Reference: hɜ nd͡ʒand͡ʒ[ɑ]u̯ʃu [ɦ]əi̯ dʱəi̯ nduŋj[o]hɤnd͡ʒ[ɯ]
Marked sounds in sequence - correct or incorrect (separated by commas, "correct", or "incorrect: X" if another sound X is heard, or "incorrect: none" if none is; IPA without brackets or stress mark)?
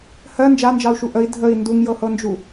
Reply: correct, incorrect: ʔ, incorrect: ɤ, incorrect: u